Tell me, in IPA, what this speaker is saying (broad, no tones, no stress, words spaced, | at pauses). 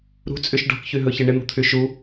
ɾṳt͡sʼyʃ ɖɔ̤kçyɦɵçɪ ɳɪn̪ṳt̪ʰy ʃu